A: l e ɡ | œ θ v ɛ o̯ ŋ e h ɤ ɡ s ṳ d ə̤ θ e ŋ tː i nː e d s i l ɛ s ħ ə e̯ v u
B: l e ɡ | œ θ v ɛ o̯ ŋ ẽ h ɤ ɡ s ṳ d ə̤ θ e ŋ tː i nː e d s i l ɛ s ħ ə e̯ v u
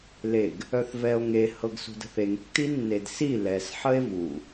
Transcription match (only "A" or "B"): A